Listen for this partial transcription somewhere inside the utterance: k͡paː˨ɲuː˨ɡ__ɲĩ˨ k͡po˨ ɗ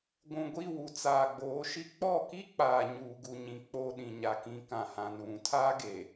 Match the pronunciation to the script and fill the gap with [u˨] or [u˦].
u˨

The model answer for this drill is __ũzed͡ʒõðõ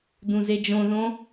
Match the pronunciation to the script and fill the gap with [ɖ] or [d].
d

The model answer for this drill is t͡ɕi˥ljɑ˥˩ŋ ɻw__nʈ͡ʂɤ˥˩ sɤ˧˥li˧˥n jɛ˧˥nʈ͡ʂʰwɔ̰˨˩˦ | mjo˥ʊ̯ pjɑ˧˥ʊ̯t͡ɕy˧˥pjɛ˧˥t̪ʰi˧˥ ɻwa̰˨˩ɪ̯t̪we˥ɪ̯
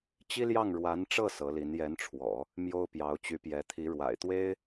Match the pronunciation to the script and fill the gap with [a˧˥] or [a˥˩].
a˧˥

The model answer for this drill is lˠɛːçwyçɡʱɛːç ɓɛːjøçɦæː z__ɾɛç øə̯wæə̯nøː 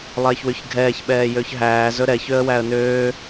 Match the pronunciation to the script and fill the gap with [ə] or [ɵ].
ɵ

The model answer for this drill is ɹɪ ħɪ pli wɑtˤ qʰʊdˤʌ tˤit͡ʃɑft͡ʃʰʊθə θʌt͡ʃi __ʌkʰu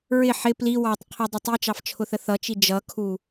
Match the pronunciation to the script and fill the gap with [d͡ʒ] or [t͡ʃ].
d͡ʒ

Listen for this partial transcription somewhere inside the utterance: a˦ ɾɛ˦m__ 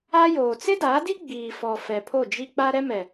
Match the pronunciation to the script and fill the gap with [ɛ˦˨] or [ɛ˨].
ɛ˨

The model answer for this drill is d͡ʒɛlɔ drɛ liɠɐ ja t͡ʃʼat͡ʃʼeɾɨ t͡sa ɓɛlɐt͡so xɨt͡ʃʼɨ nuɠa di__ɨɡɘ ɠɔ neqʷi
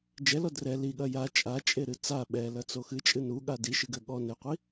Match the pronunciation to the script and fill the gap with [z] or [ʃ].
ʃ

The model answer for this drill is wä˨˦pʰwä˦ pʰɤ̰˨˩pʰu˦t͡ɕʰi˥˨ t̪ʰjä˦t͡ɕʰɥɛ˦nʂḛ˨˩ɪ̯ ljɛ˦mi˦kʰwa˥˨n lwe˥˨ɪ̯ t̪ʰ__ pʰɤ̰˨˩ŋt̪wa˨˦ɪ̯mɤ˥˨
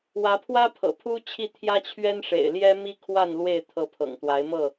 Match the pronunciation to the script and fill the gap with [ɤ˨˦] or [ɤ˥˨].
ɤ˨˦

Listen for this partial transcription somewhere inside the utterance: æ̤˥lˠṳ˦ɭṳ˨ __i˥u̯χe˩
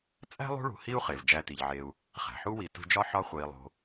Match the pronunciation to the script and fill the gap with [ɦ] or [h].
h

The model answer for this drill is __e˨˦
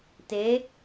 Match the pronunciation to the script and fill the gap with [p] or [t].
t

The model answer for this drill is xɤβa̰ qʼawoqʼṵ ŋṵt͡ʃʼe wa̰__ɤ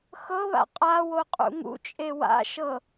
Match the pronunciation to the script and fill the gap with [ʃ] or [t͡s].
ʃ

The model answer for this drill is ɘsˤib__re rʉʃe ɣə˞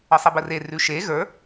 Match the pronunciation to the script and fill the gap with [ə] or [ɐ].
ə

